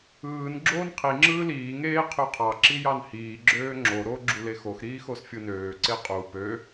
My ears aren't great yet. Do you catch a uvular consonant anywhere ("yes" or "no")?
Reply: yes